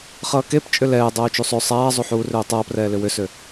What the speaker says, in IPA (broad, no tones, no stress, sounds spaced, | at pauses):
χ ʌː k e p t͡ʃʼ ʏ l ɛː dˤ ʌː u̯ t͡ʃ u sˤ ø sˤ aː zˤ u ħ uː r ø u̯ tˤ ʌː p r ɛː l ʏ w ʏ s ø